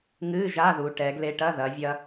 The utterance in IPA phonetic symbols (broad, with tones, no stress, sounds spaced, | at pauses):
ŋ ɨ˧˥˧ ʒ a˧˥˧ ð u˩˧ ʈ ɛ˩˧ ɡ l e˧ ʈ ɐ˧˥˧ ð ɐ˩˧ vʲ ɐ˧